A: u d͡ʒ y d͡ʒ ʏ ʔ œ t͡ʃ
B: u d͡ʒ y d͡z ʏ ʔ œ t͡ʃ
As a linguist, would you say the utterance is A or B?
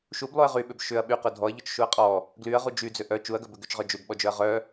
B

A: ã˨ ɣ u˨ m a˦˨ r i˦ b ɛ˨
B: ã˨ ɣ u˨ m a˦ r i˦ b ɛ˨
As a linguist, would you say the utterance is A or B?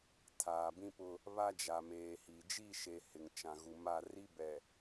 A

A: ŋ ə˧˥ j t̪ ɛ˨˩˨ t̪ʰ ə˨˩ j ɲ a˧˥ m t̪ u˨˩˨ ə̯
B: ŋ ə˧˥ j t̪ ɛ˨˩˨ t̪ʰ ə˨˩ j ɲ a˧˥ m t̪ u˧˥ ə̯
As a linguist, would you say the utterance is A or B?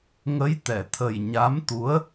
B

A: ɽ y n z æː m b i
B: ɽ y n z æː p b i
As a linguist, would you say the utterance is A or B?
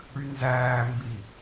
A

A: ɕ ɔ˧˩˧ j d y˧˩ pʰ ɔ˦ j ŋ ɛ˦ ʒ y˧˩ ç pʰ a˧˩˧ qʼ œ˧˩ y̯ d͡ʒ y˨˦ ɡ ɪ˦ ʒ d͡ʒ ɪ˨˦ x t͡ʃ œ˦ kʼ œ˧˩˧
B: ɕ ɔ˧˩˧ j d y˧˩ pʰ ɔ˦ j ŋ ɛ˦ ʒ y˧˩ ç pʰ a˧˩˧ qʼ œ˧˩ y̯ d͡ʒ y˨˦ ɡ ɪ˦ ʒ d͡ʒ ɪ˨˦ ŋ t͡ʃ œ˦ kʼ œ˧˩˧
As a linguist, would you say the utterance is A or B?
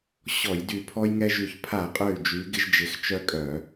A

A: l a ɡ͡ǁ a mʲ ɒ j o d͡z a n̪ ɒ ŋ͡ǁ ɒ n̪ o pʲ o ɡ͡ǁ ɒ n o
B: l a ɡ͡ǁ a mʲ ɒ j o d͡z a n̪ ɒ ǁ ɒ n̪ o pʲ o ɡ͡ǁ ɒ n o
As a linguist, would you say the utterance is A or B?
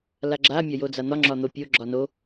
A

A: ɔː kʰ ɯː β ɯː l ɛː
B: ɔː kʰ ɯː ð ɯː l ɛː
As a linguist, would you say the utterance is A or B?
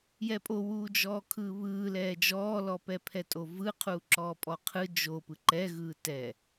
A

